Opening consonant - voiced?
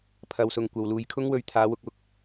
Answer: no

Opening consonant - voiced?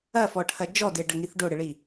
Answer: no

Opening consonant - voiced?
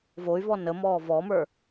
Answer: yes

